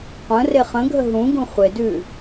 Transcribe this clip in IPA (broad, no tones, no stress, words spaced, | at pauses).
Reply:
qʷə̃ reχə̃ɡʱə ɦũɡũ χʷedʉ